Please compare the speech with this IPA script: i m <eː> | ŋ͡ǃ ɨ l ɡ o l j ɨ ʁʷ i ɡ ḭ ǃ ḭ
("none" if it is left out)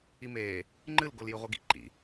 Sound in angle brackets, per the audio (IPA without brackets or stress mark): eː